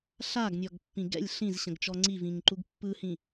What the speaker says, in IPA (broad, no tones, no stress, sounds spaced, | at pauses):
ɬ a ɡ nʲ ɔ ɡ pː ĩ ɡ ɛ̰ lʲ ɬ ĩ z ɕ ə̃ ɡ t͡ʃ ɔ ŋ͡ǀ i v ĩ ŋ ǃ u ɡ pː ɯ h ĩ